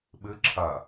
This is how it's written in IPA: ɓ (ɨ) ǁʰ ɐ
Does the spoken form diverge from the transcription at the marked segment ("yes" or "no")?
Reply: no